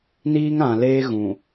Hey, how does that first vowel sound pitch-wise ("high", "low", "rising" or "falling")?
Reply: high